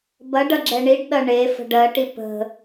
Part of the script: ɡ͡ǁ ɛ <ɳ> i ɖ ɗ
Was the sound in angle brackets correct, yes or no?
yes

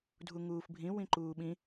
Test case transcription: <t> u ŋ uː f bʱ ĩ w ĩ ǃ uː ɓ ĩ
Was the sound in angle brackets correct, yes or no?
no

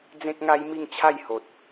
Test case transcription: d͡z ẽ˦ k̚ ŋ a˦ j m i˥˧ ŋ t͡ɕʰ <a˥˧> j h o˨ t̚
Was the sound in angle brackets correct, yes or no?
yes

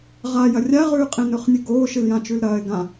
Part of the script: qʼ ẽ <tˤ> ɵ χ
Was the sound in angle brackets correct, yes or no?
no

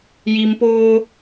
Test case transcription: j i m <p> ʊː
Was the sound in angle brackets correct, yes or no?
yes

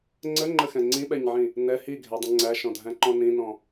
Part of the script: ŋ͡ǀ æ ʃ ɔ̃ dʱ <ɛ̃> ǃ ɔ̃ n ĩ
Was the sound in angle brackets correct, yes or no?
no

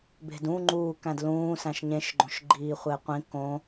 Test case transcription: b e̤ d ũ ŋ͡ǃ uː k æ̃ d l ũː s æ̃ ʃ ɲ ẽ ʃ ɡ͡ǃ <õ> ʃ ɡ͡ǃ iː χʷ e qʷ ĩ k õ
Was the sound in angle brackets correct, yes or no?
yes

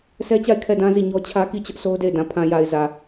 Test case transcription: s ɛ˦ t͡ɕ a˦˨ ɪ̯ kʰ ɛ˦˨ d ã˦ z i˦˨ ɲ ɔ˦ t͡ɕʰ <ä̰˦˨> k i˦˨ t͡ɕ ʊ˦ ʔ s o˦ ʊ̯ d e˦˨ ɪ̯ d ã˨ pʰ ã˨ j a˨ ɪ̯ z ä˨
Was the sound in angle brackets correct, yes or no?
no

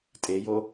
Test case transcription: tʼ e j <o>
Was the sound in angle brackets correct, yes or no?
yes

